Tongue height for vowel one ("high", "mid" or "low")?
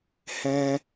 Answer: mid